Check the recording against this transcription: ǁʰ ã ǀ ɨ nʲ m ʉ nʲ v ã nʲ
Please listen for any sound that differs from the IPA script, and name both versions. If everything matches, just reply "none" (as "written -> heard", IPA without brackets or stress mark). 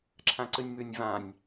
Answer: none